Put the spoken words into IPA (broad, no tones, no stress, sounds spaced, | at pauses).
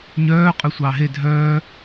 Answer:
ɲ œː qʼ ø sʷ ɑː ɦ e dʱ œː